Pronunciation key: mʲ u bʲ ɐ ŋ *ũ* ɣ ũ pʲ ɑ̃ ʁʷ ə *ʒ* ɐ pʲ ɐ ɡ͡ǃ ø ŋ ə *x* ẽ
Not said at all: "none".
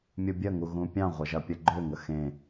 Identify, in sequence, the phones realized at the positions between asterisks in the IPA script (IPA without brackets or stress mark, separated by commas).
u, ʒ, x